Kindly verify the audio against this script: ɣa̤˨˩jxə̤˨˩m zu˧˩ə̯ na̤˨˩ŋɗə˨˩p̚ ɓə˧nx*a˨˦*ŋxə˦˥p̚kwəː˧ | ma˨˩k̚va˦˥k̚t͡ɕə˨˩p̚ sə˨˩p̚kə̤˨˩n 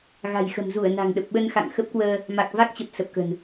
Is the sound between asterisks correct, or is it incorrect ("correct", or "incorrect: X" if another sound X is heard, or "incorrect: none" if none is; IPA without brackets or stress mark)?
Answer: incorrect: a̰˧˨